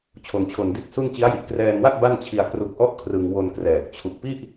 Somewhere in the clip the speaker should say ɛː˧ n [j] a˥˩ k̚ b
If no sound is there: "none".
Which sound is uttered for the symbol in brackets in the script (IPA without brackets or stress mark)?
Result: w